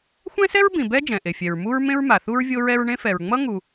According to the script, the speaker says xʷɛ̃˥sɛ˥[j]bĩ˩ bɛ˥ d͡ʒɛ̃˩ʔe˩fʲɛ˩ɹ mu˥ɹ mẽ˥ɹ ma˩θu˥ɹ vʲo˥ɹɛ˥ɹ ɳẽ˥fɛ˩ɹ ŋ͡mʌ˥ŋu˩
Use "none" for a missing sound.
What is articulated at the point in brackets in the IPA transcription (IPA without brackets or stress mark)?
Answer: ɹ